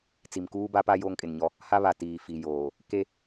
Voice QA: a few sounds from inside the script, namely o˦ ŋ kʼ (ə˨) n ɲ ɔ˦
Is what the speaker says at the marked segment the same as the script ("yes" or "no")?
no